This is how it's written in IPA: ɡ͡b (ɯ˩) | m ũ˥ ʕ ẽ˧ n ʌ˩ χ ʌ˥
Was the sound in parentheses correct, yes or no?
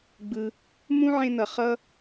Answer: yes